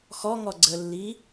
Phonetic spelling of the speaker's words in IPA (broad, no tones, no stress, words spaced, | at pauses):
xɔŋɔ ɡ͡ǀəlːi